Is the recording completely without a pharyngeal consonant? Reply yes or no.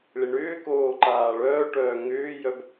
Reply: yes